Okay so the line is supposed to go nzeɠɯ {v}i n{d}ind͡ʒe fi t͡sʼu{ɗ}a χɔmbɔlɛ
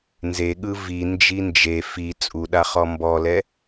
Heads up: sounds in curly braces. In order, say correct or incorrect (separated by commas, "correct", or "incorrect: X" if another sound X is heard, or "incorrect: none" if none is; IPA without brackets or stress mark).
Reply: correct, incorrect: d͡ʒ, correct